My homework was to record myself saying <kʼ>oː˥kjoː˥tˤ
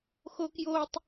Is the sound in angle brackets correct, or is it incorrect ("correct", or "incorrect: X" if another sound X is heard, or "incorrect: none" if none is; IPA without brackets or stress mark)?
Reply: incorrect: x